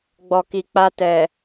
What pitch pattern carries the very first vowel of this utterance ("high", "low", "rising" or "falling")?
low